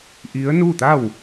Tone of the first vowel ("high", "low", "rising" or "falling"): rising